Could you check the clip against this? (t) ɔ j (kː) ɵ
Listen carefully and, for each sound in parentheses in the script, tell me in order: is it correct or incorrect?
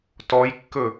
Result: correct, correct

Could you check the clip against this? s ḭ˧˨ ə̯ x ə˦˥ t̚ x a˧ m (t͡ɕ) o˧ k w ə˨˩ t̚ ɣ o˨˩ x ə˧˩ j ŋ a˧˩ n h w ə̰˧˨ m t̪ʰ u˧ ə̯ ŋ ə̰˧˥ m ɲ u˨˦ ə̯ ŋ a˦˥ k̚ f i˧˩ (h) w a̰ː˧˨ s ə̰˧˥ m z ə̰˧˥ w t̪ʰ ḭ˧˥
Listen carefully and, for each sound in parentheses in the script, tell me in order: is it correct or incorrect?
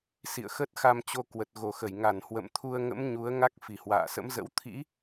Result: correct, correct

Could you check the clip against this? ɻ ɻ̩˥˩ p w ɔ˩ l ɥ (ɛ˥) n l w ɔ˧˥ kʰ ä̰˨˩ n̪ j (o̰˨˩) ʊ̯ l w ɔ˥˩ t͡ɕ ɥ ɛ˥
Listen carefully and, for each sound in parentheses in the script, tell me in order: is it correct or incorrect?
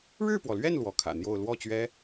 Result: incorrect: ɛ˥˩, incorrect: o˥˧

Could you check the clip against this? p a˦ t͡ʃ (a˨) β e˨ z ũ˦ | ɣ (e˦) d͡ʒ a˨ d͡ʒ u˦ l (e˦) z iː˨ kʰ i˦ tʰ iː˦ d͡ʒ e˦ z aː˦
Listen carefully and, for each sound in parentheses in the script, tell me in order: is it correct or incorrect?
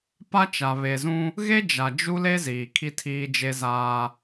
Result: correct, correct, correct

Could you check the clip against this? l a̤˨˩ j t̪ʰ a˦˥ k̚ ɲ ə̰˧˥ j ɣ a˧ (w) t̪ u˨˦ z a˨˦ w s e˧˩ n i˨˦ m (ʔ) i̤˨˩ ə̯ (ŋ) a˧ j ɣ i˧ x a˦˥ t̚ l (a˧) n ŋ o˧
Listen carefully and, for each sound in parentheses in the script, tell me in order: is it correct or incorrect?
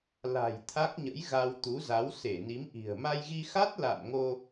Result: correct, correct, incorrect: m, incorrect: a̰˧˨

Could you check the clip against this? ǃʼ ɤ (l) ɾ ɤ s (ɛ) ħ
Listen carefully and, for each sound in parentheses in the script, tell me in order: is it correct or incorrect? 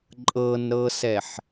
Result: incorrect: n, correct

